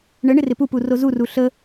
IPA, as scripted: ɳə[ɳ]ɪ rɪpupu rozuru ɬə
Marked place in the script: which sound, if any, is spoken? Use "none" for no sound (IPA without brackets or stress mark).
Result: ɳ